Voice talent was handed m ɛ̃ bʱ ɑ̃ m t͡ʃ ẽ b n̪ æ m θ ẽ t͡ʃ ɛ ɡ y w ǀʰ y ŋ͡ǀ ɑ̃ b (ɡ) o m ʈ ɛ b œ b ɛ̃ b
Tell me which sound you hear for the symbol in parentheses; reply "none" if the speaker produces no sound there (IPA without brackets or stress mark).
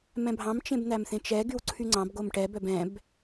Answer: ɡ